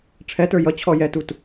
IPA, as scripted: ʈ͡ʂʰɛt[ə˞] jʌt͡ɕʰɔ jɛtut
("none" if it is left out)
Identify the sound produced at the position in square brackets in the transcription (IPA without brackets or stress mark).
ə˞